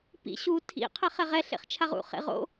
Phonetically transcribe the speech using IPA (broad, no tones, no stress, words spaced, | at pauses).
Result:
pḭ ɕu tʰḭ qʰɛχɛʁɛ ɬḛχt͡ʃʰaʁṵ χḛʁo̰